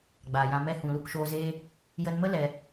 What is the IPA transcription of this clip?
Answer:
ɡ͡b aː˨ j ã˧ m ɛ˧ h ũ˨ l u˧ k ʃ oː˧ z eː˦ | j ə˧ n m ə˦ l ɛ˧

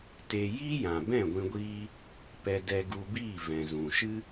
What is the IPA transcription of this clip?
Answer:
t e˧ j iː˦ j ã˨ b ɛ̃˦˨ ɡʷ ĩ˧ ɡʷ iː˦ | p ɛ˧ d ɛ˧ ɡ u˧ b iː˦˨ v ɛ̃˨ z ũ˨ ʃ ɨ˦

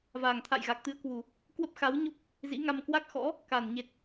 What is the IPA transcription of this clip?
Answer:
v aː˨˩ ŋ t̪ʰ a̰˧˨ j ɣ a˨˩ k̚ t̪ ɨ˨˦ ə̯ k w u˨˩ | k w ə˦˥ p̚ x a˨˦ w ɲ o˦˥ p̚ | z ḭ˧˥ ŋ a˧ m k w a˦˥ k̚ x ɔ̰˧˥ | k a˨˩ n ɲ e˨˩ t̚

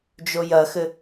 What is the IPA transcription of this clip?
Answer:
d͡ʒ o j ɐ x ɘ

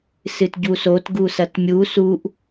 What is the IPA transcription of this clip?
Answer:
s ɨ t ɟ u s o t ɡ u s ɐ t mʲ u s u ʔ

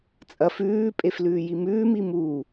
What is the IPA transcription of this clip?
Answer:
t͡sʼ ɐ f ʉː pʼ e f l ʉː j i m ʉː m i m u

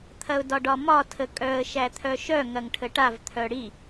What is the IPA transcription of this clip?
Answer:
t̪ʰ ɐ ʊ̯ d ɒ ɖ ɒ m ɒ tʰ ə kʼ œ ə̯ ʃ æ t̪ʰ œ ʃ œ ŋ ɐ ŋ ʈʰ ə ʈ a v t̪ʰ œ ɽ i

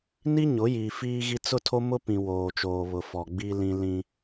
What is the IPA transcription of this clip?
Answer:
n i˦ ɲ ʊ˨˦ j iː˨ f iː˦ ɣ i˦ t͡s ʊ˦ tʰ o˦ m ʊ˦ p ĩ˨ w oː˨ t͡ʃ oː˨ β ʊ˨ f ɔ˨ ɡ͡b i˦ l ĩ˦ l ĩ˦

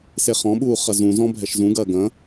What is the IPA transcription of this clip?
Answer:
s e χ ɔ̃ ɓ uː χ ɐ z ũ z ɔ̃ bʱ ɛ ʃ z ũ ɡ ɐː ɡ ɐ̃

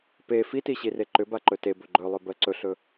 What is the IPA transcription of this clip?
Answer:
p e f i t i ɕ i r e ǃ ʏ b a ǃ ɵ t e b ɵ ɡ͡ǃ ɵ lˠ ɵ b ɜ ǀ ɵ ɬ ɵ

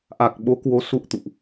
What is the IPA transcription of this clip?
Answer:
ʔ a˨˩ k̚ ɓ o˨˦ k w o˨˦ s ṵ˧˨ ə̯ t̪ ṵ˧˨ ʔ

